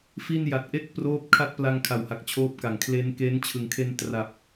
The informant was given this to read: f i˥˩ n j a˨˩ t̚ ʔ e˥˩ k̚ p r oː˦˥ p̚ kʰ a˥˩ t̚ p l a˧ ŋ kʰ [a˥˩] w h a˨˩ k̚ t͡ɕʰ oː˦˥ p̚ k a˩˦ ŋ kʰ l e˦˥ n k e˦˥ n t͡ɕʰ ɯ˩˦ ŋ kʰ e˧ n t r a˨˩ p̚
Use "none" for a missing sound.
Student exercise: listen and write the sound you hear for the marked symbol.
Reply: a˨˩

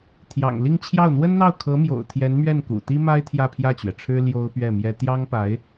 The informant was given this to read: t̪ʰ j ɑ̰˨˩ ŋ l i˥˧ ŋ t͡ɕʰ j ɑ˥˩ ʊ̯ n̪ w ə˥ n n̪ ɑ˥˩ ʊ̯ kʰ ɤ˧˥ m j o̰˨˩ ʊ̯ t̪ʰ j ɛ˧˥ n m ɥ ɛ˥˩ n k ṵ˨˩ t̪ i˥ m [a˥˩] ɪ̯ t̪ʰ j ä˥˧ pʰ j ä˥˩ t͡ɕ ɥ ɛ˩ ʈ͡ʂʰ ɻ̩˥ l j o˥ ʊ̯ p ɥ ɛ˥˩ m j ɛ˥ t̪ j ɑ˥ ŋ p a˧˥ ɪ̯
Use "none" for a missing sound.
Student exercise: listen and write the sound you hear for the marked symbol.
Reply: a˥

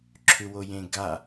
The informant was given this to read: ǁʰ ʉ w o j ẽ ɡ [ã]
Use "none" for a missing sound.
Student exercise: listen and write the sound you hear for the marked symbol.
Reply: a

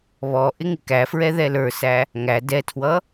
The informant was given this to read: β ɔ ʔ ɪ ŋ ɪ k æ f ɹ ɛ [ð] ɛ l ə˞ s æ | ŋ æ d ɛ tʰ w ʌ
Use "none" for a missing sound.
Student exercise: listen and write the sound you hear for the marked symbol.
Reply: ð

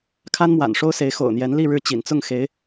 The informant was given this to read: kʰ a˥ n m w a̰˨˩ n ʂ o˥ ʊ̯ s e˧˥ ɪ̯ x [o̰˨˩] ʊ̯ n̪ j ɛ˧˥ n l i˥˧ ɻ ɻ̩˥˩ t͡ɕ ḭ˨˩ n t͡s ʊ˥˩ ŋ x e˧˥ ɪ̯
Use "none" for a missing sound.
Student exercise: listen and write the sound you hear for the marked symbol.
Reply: o̰˨˩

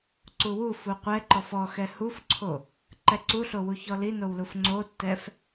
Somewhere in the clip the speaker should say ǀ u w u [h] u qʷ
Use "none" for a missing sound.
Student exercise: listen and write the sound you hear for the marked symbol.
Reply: f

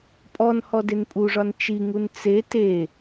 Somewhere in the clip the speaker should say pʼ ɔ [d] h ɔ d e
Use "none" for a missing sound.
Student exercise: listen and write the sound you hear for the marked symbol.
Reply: n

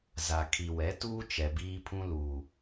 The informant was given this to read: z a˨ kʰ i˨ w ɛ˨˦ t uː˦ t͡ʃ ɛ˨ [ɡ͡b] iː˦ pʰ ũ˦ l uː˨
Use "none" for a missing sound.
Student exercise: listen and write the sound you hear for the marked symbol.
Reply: b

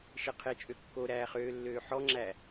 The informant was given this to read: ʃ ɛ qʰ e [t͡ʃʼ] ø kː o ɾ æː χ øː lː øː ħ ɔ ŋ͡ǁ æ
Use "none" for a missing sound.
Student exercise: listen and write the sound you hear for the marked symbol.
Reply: t͡ʃʼ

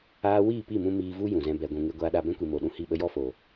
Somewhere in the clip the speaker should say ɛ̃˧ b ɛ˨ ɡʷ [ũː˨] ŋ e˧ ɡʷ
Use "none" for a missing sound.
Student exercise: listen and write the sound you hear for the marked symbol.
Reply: ũ˨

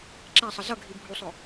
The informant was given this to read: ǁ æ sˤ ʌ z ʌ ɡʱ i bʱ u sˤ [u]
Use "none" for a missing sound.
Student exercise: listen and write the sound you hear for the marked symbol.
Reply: ʊ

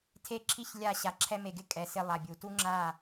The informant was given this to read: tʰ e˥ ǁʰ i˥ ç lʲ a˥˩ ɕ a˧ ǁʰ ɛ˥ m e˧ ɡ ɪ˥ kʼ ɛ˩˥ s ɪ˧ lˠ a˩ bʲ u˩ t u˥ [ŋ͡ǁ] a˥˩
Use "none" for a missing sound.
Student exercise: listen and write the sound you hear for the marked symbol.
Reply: ŋ͡ǁ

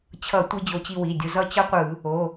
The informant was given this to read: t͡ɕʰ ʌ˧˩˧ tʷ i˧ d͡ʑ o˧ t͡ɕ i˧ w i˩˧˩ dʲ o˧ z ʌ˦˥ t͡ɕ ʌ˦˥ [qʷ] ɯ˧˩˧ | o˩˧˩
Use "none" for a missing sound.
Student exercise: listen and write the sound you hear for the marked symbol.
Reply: qʷ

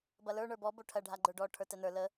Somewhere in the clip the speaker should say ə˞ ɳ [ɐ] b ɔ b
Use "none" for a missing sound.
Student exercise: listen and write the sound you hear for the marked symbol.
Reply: ə˞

